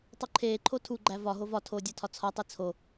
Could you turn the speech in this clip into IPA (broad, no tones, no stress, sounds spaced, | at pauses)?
tˤ u ǃʰ eː ǃʰ o tʰ u ɡ͡ǃ æ v ɒ ɦ o v ɒ tʰ oː dʲ ɒ tʰ ɒ t͡sʰ ɒ tˤ i t͡sʰ o